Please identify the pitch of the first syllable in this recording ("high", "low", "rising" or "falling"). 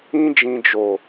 high